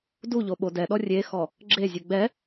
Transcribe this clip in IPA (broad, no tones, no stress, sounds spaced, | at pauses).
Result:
d u ʎ o ɓ o d ɛ ɗ ɔ rʲ e x ɔ | ɡ͡ǁ e zʲ u ɡ͡b ɛ